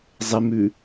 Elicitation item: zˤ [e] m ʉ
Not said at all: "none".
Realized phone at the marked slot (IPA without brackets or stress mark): e